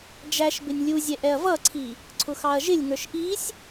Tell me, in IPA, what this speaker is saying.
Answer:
d͡ʒ æ ʃ b ɪ nʲ lʲ u zʲ ɛ ʔ ɛ ɐ̯ v ʌ ǀʰ i | ǀʰ ʊ x ɑ ɐ̯ ʒ ɪ lʲ ŋ ə˞ ʃ ʔ i sʲ

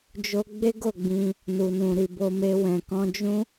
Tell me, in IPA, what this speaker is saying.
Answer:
d͡ʒ o˦ ɡ͡b e˦ ɡ o˦˨ ɡ͡b ĩ˧ | n u˨ n ũ˨ ɾ i˨ b o˧ m e˧ w ɛ̃˨ k ɔ̃˧ d͡ʒ ũ˦

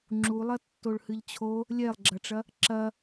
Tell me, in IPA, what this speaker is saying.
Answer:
ŋ͡ǁ u lˠ ɐ tː o ɭ h ɨ ʎ t͡ɕʰ o | lʲ ɛ lˠ ɡ͡ǁ ɐ ʈ͡ʂ ɐ | ǁ ɐ

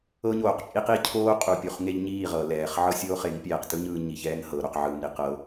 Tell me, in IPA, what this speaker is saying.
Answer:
ɤ˦ ɲ oː˨ q t͡ʃʼ i˦ q i˦ cʰ oː˦ qʼ u˨ pʲ u˨ χ ŋ e˦ ʎ ɲ iː˦˨ ʁ ɤ˨ l ɛː˨ χ ʕ ɤ˦ sʲ oː˦ χ e˨˦ ŋ pʲ ɛː˨ q t ɯ˦ ɲ ɯː˧ ɲ i˨ ç ɛː˦ ŋ h ɤ˨ ɾ o˧ q ʕ ɯː˧ m ɾ i˧ q ɤ˨˦

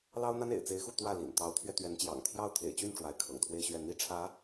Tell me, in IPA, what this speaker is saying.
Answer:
l ɑ˥ ʊ̯ n̪ a˥ n ḛ˨˩ ɪ̯ t͡s e˧˥ ɪ̯ x u˥˧ t̪ w ä˥˩ l ḭ˨˩ n t̪ ɑ˧˥ ʊ̯ t̪ʰ ɥ ɛ˧ t̪ ɥ ɛ˧˥ n t͡ɕ j ɑ̰˨˩ ŋ t̪ʰ j ɑ˥˩ ʊ̯ t̪ʰ ḛ˨˩ ɪ̯ t͡ɕ y˥˩ n ʈ͡ʂ w a˧˥ ɪ̯ kʰ ɤ̰˨˩ ŋ t̪ʰ w e˥˧ ɪ̯ ɕ ɥ ɛ˥˩ n̪ i˥ ʈ͡ʂʰ ä˧˥

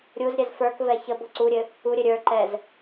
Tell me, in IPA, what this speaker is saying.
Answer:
ɾʲ u z ɾʲ ɛ z f ə˞ k v ɛ ç ə b o ǀ u ɾʲ ɘ | u ɾʲ ɘ ɾʲ ə˞ ǃ ɛ z

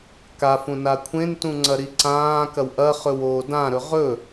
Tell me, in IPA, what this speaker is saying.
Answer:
k a f ũ n a kʷʰ ẽ n t ũ ŋ͡ǀ ɐ ɾ i ǀ ãː k ɐ w ʔ ɐ χ ɵ w oː d ã ɾ ɵ ʁ ɵ

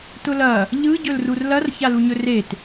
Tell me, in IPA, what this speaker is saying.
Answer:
t ʊ l ɐ | ʎ ɯ ɟ ɵ l r u r l ɐ r ç a l u ɲ ɵ r e t

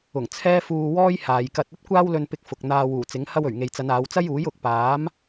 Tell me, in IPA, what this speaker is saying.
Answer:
ʊ˨˩ ŋ t͡sʰ ɛː˥ f uː˧ w ɔː˥ j h aː˨ j k ɐ˧ t̚ ɐ˥ t̚ kʷ aː˥ w l ɵ˧ n p ɪ˧ k̚ f ʊ˨ k̚ n̪ aː˧ w uː˨˩ t͡s ɪ˨˥ ŋ h ɐ˧ w ɵ˨˩ ɥ ŋ e˨ j t͡s ɐ˨˧ n aː˨˧ w t͡s ɐ˥ j uː˨˥ j ʊ˨ k̚ p aː˨˥ m

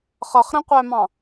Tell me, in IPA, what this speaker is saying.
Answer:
χ ʌ χ ɾ ɛ̃ qʷ æ m ɑ̃

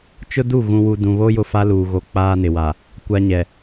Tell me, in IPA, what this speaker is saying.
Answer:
t͡ʃ ʊ˦ d u˦˨ ɣ ũ˨ w u˨ d ũ˨ β o˦ j ʊ˦ f a˦ l uː˨ ɣ o˨ k͡p aː˦ n ɪ˨ w a˨ | kʷ a˦ ɲ ɛ˨

